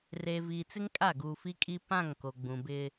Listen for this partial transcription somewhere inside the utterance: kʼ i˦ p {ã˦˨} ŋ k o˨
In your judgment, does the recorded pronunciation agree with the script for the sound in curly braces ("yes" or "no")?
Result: yes